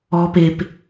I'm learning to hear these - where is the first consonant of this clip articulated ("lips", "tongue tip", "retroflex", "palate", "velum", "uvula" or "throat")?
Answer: lips